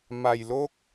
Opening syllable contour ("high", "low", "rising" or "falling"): low